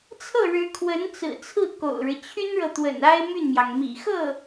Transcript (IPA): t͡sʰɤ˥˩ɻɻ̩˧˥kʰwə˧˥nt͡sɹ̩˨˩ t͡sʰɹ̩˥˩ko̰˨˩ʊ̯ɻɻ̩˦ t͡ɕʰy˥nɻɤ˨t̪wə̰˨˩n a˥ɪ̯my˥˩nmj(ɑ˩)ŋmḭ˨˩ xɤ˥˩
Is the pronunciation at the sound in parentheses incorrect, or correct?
correct